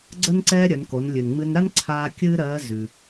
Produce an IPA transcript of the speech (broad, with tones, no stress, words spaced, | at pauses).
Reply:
ɡ͡ǀə˧nǀɛː˧ ɾʲœ˩˧nko˩˧n lʲʉ˩nŋ͡mɨ˧nɾa˥n ǀʰaː˧ kʲɨː˥ ɾɜː˧˥ zʉ˩